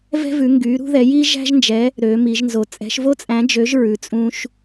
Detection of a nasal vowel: present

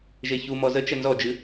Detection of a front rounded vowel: absent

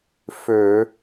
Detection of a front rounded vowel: present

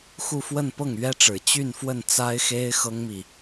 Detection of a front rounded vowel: present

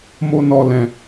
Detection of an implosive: absent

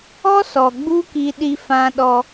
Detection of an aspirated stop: absent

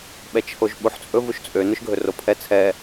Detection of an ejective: present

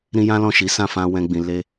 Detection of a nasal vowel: present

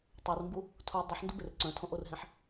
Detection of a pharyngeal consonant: present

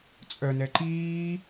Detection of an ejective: present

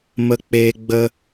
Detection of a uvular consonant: absent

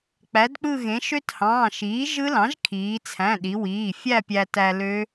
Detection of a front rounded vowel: present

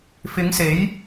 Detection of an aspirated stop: absent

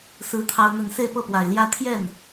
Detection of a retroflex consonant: absent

